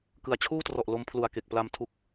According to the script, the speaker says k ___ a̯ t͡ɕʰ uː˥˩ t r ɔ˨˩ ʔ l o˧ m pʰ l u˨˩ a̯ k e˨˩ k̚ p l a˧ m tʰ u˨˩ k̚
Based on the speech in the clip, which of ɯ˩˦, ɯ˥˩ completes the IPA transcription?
ɯ˩˦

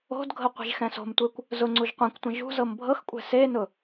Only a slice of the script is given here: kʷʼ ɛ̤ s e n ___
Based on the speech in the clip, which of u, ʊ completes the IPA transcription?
ʊ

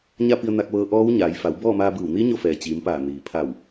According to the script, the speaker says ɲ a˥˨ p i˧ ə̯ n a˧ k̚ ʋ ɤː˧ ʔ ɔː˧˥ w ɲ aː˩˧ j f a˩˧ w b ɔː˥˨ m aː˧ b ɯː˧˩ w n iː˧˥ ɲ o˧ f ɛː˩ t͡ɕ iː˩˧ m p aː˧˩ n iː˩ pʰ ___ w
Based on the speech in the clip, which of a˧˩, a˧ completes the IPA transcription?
a˧˩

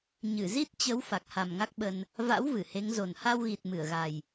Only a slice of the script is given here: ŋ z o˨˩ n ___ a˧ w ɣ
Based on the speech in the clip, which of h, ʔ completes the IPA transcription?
h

